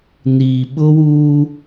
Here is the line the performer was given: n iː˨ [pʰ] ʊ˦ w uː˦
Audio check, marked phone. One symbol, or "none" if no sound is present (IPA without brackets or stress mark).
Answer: ɓ